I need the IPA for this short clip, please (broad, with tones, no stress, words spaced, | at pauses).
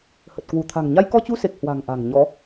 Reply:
hə˨˩t̚ kwu˧˩t̪ʰa̤˨˩ŋ ɲa˧jkɔ˧t͡ɕu˧se˨˩k̚ hwa̤˨˩ŋ ʔa̤˨˩ŋɲɔ˨˦